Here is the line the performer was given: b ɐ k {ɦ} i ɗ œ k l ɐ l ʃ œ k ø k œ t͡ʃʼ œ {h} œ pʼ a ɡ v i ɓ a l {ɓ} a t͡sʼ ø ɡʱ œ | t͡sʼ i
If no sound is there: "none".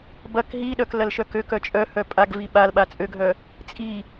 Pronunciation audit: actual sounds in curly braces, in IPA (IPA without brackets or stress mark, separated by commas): ɦ, h, ɓ